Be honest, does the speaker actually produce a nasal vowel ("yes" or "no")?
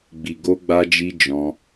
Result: yes